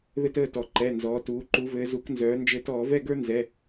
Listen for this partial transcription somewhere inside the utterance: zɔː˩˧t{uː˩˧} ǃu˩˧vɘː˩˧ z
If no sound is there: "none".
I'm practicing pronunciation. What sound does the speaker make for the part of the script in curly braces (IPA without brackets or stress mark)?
uː˩˧